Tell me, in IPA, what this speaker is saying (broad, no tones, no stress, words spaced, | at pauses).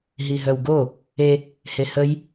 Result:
ɦiɦœwɡo | e | hehəj